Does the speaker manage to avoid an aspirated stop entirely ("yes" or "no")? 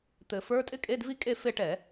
yes